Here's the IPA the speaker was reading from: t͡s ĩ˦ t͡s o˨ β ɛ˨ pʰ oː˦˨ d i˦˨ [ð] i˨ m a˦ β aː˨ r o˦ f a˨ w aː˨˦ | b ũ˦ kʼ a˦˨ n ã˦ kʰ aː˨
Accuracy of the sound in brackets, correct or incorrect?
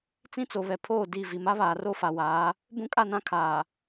incorrect